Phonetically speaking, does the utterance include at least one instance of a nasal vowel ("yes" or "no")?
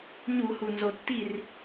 no